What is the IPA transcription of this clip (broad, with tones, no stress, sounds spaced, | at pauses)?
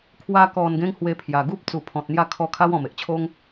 kʰ w a˧ k ɔ˨˩ n ɡ ẽ˦ ŋ h w e˧ pʰ j a˨˩ ɡ u˦ p̚ t͡s u˨˩ pʰ ɔ̃˨ t̚ n̪ j a˥˧ kʰ ɔ˧ kʰ a˦ w ɔ̃˨˩ m e˨ ʔ t͡ɕʰ o˦ ŋ